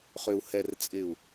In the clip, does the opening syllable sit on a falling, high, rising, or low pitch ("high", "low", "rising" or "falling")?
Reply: low